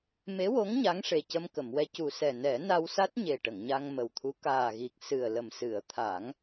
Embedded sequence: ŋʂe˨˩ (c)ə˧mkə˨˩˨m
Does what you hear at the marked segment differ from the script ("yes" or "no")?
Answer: no